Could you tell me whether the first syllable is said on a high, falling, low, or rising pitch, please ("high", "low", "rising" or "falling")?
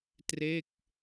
falling